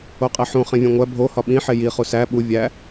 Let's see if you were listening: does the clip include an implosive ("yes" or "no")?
yes